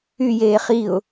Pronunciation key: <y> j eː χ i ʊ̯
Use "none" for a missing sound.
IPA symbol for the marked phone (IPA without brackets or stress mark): y